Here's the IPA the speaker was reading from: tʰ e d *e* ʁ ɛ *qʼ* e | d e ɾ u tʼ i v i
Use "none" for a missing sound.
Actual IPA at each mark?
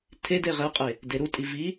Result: e, qʼ

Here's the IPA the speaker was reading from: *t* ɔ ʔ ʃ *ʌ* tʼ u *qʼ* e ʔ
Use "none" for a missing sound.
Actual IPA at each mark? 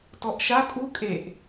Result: t, a, kʼ

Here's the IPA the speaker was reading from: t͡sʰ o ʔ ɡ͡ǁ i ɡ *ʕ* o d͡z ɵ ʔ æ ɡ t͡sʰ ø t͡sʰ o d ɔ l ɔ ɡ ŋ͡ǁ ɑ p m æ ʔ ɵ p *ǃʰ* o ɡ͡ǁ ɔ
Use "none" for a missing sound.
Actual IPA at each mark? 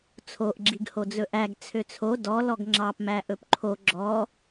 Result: h, ǃʰ

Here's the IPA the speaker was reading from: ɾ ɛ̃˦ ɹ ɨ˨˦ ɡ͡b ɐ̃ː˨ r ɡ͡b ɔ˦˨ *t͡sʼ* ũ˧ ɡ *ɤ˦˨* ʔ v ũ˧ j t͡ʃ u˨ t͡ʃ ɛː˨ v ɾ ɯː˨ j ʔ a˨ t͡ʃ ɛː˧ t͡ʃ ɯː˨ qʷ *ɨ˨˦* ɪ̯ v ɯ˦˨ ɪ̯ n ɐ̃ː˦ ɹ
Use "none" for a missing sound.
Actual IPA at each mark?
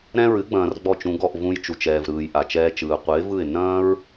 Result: t͡ʃ, ɔ˦˨, ɨ˨˦

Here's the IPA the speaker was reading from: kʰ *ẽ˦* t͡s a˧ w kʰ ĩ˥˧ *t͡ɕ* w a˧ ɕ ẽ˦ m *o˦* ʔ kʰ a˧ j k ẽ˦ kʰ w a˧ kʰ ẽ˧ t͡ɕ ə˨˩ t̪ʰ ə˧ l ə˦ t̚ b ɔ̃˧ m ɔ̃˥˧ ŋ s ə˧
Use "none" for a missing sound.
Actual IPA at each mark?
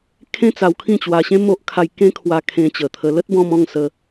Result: ẽ˦, t͡ɕ, o˦

